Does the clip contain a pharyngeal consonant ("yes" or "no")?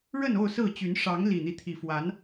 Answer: no